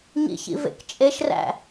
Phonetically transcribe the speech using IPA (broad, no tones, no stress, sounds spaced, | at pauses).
ɲ ḭ ç ḭ v ḛ k t͡ʃʼ e ʃ r æ̰